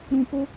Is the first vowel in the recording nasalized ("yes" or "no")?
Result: yes